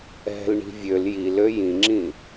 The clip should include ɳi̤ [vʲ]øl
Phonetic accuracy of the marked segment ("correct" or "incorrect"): correct